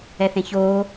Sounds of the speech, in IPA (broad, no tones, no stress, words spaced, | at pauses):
ɛθẽçoː